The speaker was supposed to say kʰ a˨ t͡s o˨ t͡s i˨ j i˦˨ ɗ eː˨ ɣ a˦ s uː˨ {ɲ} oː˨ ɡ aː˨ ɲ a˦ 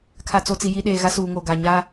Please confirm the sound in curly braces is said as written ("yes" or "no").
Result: no